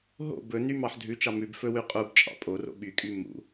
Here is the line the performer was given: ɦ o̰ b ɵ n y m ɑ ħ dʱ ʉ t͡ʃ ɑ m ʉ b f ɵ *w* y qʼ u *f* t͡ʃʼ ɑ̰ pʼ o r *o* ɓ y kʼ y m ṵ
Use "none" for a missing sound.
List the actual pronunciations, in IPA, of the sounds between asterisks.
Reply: w, b, o̰

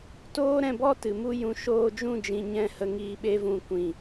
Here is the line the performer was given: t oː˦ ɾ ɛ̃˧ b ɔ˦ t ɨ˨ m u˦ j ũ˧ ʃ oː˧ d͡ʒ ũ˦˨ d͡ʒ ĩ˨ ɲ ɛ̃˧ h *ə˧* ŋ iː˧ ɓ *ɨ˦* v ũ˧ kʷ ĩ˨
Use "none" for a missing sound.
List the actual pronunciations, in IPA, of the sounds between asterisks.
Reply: ə˧, e˦

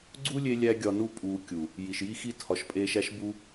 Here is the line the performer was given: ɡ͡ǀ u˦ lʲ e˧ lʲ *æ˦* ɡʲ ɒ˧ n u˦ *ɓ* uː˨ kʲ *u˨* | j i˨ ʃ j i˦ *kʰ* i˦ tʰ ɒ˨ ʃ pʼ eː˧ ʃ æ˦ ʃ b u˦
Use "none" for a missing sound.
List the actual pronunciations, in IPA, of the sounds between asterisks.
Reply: æ˦, pʼ, u˨, x

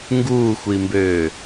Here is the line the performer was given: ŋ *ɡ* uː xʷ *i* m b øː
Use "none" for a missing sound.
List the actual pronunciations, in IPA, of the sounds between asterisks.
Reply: ɡ, i

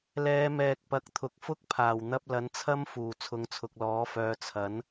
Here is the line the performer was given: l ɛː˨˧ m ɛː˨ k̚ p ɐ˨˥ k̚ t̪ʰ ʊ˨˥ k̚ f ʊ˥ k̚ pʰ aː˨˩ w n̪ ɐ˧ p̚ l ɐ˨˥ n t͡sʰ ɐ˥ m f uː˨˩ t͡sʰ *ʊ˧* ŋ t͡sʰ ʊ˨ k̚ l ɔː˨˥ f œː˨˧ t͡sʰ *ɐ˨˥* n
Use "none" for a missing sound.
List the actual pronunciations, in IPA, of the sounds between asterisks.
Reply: ʊ˨˧, ɐ˨˥

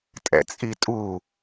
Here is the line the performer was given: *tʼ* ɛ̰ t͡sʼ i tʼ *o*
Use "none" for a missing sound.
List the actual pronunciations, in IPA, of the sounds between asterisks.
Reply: tʼ, u

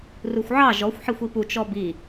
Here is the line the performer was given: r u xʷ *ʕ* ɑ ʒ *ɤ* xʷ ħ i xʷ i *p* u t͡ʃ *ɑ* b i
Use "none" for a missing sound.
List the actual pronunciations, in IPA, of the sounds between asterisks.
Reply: ʕ, ɔ, p, ɔ

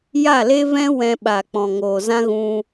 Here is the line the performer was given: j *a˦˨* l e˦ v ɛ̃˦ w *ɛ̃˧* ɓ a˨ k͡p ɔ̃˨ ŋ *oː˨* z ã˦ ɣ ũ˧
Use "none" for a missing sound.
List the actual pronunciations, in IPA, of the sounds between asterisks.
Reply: a˦˨, ɛ̃˧, oː˨

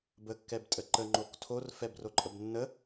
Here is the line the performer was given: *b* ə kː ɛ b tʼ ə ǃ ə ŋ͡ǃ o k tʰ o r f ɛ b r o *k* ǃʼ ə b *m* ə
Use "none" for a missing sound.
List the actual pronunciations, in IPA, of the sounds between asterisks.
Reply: b, none, nː

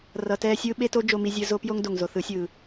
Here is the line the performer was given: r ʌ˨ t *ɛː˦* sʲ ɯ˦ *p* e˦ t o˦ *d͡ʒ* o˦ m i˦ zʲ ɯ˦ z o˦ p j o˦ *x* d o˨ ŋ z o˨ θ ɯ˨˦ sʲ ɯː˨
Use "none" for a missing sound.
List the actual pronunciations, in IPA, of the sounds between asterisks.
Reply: ɛː˦, ɓ, d͡ʒ, ŋ

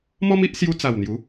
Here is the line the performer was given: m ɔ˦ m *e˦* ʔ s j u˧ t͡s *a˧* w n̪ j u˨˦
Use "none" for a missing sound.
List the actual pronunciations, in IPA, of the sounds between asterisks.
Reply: i˦, a˨˩

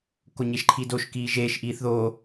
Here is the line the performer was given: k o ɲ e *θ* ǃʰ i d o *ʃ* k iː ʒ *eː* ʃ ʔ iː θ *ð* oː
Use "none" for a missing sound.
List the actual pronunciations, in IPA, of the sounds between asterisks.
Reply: ʃ, ʃ, eː, ð

